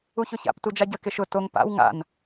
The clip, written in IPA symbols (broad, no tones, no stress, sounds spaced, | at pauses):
u ç ʊ ç a̰ p t u d͡ʒ a ɟ ə k ɪ ʃ ʊ t o ŋ p a̰ w ŋ a̰ n